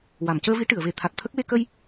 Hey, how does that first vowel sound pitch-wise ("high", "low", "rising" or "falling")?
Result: low